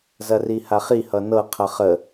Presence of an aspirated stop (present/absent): present